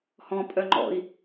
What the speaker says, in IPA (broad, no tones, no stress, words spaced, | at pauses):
hɔ̃ pʼœŋ͡ǃɔ̰i̯